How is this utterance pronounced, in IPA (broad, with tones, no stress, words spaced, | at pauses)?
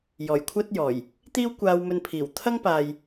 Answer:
jɔː˨˩jkʷʰɐ˥t̚jɔː˨˩j | t̪iː˥wkʷaː˧wmɵ˧npʰiː˨˩w t̪ʰɐ˥ŋpaː˨j